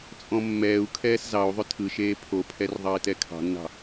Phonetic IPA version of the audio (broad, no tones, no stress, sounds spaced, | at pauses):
t͡sʼ ɔ̃ mː ɛː u̯ kʰ ɛː s z ɑ u̯ ðˤ ʏ tʰ ɯ ʃ eː pʰ o pʰ ɛ r ðˤ ɑ i̯ t ɛ kʰ ɑ̤ nː ɑ̤